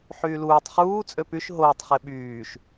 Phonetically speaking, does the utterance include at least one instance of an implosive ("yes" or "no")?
yes